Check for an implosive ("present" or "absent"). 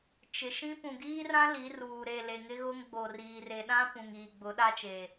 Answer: present